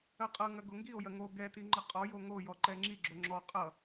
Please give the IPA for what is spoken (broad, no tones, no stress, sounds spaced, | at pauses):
ɐ qʼ ʌ ŋ ɐ ɡ o ŋ ɡ i o̯ j ɐ ŋ o ɡ ɛ t i ŋ͡ǃ ə qʼ ɔ j o ŋ o j ɔ ǃ ɛ ŋ͡ǁ i ɡ͡ǁ o ŋ͡ǁ ɔ qʼ ʌ